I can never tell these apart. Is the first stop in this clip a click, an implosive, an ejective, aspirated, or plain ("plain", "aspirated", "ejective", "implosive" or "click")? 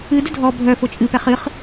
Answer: plain